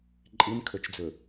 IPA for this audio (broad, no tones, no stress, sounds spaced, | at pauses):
ǃʼ i n kʰ ɵ t͡ʃ d͡z ɵ